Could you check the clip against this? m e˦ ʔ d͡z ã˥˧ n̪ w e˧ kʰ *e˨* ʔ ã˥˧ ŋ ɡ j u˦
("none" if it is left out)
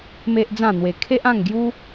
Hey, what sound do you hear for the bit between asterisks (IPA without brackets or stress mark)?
e˦